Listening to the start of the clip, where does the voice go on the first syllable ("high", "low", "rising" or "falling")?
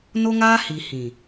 high